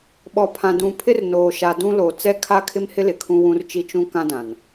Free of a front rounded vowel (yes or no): yes